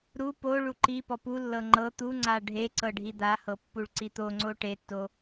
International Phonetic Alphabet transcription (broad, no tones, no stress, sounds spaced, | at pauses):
ɾ u p o ɭ u ǃ i p ɔ p u lː ɤ ŋ͡ǃ ɤ t̪ u ŋ͡ǀ a ɖʱ e ǀ ɤ ɖʱ i d̪ a h ɤ pː u ɭ ǀ i t̪ o ŋ͡ǀ o ʈ e tː o